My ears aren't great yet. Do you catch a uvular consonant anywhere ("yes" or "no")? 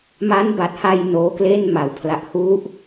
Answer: no